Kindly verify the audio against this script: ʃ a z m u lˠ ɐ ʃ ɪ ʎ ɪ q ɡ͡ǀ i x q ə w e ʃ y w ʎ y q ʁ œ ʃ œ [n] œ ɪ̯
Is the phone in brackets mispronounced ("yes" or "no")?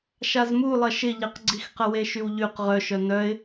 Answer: no